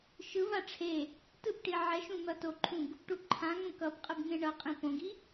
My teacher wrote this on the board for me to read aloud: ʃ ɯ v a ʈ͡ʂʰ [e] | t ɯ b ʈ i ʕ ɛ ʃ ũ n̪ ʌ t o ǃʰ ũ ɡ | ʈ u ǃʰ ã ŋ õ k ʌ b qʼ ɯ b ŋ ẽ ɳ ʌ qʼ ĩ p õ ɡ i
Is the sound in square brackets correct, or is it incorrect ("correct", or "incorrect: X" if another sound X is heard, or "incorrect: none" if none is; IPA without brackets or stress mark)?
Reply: correct